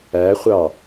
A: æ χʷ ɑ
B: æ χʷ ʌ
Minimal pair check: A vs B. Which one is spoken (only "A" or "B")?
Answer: A